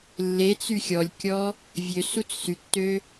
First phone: lː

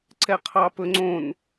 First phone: ǀ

